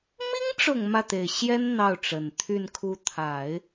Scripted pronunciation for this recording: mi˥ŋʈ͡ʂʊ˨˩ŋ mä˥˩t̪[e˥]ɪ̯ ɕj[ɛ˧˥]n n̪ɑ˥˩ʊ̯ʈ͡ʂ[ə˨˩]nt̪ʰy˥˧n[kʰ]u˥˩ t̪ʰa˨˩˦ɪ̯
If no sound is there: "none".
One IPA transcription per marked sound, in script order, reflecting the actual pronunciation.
e˨˩, ɛ˥, ə˨˩, kʰ

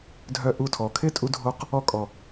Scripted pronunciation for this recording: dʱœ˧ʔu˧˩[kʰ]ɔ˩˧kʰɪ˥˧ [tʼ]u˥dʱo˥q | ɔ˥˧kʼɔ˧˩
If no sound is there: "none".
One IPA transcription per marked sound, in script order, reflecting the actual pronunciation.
tʰ, tʼ

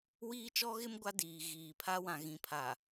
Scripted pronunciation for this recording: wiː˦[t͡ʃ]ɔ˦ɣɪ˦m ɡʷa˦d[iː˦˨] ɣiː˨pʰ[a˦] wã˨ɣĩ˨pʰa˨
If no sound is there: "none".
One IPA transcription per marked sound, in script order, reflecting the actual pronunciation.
t͡ʃ, iː˨, a˦

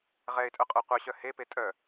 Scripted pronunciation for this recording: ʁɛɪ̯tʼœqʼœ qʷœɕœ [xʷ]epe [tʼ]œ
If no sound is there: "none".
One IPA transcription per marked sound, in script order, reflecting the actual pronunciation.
h, tʼ

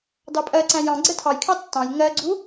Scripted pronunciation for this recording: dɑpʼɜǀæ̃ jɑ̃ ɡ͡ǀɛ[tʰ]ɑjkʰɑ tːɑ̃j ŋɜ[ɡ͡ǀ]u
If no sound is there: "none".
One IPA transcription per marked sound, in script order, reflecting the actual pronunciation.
tʰ, ɡ͡ǀ

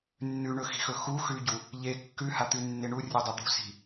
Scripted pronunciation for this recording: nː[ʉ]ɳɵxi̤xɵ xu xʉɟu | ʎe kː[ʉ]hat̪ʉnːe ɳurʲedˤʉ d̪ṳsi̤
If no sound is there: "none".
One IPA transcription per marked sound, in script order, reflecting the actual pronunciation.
ʉ, ʉ

